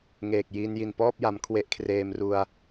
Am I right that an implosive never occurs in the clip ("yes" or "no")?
yes